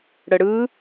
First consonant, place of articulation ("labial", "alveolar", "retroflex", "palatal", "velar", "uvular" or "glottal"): retroflex